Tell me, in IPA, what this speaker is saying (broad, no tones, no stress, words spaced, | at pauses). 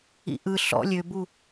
ḭʔɯ ɬɔ̰ lʲøbu